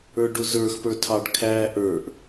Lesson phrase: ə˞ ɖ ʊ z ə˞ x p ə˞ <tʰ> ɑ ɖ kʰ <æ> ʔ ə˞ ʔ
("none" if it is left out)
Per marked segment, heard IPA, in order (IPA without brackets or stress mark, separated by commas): tʰ, æ